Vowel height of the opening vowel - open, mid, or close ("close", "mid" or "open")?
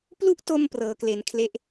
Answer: close